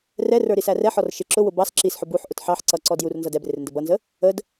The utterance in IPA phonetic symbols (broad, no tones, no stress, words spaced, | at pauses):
rɛrə˞ ɾisærɛħɔr ʃɪ ǁʊwʊ bɑs ǁisħʊ buħʔʊt ħɑħ ǀʌǀɔ djur nzʌdɛbrɪr ndəbʌnzə | əd